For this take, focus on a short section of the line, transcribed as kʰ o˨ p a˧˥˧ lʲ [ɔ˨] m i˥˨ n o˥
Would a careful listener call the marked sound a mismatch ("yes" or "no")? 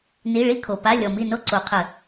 no